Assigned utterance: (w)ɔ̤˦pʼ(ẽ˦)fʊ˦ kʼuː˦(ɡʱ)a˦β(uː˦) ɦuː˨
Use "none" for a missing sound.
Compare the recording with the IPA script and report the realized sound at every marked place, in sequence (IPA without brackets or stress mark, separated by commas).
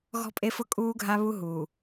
ɣ, e˦, ɡʱ, u˦